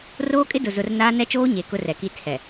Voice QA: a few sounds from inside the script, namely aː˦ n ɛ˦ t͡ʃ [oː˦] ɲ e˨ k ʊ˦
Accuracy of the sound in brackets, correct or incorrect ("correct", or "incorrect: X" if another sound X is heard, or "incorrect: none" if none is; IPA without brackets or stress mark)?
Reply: correct